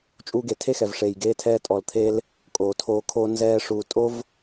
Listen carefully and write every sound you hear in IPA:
t͡ʃʼuː˧ɡe˨tʰe˦ xɛ˨vʂeː˨j ɡeː˦tʰɛː˦ tʼɔ˨lt̪ʰeː˧l | kʼoː˨tʰoː˧kʰoː˦ nzɛː˧ ʂuː˨tʼo˦v

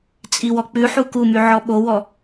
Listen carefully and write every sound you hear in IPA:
t͡sʼiwɔk͡pʉħu kumy ʕɔɓowɔ

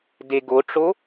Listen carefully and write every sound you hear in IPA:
deɡoʈ͡ʂo

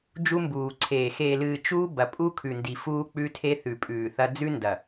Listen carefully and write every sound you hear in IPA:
d͡ʒu˦mbuː˨ǀʰeː˨ xeː˨lɨː˨ t͡ʃuː˦ bɐ˨pʼu˦kʰʉ˨ndi˨ fuː˦k͡pʉ˦tʰe˦ θʉ˨pʼʉː˨θɐ˦ d͡zʉ˦ndɐ˨

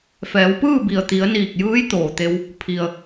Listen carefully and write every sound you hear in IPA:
fɛː˩˧wpɯː˥˨bi˩ə̯ t̪i˩˧ə̯niː˧˩k̚ jɯː˧˥jt̪oː˩t̪e˧w | pʰi˩ə̯

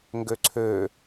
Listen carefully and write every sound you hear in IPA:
ŋɡøǀʰø

